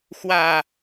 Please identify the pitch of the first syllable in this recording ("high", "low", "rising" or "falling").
low